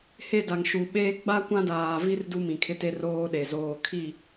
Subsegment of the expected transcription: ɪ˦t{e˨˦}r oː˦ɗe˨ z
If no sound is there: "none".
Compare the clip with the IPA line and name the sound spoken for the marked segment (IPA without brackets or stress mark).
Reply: e˦